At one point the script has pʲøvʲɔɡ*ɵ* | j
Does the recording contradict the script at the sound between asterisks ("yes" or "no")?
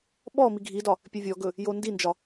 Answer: no